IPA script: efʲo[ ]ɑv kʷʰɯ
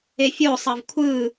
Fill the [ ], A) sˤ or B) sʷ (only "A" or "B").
A